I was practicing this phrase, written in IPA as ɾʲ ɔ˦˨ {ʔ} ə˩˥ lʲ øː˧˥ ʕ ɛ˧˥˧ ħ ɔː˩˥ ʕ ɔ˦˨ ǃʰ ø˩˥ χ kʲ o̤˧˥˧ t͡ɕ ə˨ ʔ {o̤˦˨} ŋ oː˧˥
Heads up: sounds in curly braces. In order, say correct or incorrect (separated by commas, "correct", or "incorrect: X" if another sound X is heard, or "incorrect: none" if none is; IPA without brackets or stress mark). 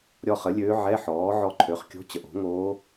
incorrect: χ, incorrect: o̤˩˥